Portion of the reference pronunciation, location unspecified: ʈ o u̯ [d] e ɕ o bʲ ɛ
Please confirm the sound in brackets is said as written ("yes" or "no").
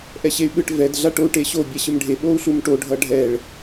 no